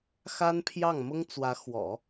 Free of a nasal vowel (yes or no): yes